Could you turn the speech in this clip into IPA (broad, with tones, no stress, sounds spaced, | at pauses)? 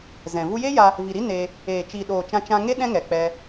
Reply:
z ɛ̃˨ v u˧ j e˦ j a˧ | v i˨ ɾ i˦ n eː˧ | eː˨ t͡ʃ i˨ ɗ oː˨ t͡ʃ ã˧ t͡ʃ ã˧ ŋ e˦ ɗ ɛ̃˦ ŋ ɛ˨ k͡p ɛ˧